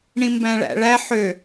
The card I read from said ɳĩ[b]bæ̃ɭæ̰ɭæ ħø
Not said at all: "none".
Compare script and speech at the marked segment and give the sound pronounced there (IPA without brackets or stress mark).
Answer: m